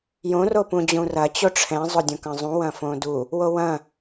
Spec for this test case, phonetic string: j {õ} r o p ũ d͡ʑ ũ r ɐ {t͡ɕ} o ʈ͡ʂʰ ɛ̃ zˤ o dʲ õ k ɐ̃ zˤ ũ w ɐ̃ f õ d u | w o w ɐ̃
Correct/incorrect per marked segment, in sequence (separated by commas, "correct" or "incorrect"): correct, correct